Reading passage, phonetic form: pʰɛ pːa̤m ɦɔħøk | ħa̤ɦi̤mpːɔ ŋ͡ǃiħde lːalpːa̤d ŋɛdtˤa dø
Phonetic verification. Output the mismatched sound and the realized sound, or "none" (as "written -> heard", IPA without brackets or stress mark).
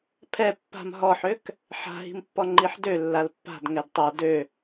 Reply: e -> ø